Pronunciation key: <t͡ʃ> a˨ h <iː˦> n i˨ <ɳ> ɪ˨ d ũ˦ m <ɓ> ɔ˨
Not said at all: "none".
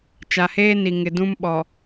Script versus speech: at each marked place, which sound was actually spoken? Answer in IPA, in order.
t͡ʃ, eː˦, ŋ, ɓ

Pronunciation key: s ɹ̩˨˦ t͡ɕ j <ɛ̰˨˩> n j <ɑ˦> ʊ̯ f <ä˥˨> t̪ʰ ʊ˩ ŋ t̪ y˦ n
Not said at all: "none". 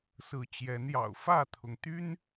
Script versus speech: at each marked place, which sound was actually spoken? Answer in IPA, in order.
ɛ˨˦, ɑ̰˨˩, ä˥˨

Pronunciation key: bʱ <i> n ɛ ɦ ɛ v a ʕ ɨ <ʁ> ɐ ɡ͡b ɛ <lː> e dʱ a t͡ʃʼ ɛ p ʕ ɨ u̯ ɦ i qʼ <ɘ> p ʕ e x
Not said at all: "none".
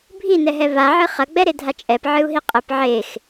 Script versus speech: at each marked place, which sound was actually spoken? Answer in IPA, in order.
i, χ, ɾ, ɘ

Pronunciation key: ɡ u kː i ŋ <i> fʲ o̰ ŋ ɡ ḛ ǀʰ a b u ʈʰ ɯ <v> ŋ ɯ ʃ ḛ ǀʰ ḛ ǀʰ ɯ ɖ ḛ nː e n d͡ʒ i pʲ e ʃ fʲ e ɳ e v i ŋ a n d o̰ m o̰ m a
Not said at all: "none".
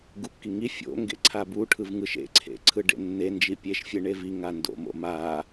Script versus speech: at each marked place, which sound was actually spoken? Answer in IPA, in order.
i, v

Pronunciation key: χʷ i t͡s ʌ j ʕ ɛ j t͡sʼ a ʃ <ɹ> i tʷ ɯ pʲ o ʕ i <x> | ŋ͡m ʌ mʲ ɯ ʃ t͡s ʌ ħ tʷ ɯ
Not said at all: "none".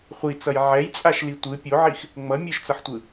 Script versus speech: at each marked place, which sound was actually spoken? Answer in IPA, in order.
l, x

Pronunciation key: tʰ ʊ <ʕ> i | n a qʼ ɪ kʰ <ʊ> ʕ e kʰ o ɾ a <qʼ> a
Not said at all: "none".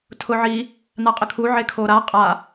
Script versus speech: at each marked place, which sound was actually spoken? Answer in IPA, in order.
ʕ, u, qʼ

